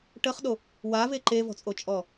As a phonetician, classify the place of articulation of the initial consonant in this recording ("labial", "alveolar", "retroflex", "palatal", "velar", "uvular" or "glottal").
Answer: retroflex